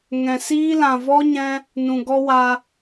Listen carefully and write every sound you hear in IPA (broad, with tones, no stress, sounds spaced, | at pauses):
ŋ ɛ̃˨ s iː˦ l ã˨ v ɔ˦ ɲ ɛ̃˧ | n ũ˨ ɡ ɔ˦ w a˧